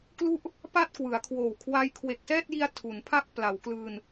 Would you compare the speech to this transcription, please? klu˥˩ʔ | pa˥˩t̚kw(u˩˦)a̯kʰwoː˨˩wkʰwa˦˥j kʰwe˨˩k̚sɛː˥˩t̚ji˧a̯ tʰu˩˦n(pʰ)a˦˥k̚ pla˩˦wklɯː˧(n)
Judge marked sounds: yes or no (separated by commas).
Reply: no, yes, yes